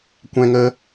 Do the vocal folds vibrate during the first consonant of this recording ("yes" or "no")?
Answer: no